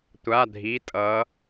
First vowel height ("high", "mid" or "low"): low